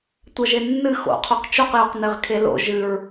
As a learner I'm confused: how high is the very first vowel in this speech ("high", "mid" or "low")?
low